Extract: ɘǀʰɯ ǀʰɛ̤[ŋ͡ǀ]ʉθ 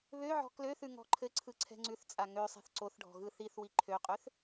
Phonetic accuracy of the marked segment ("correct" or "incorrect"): correct